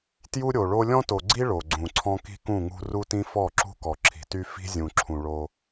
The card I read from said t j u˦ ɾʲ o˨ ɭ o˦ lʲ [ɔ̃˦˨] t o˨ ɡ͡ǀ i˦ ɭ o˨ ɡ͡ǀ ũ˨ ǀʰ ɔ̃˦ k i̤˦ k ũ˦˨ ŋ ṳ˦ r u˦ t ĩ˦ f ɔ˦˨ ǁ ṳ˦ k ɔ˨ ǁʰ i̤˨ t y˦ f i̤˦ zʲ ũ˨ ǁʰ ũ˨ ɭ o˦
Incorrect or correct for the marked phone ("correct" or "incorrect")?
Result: incorrect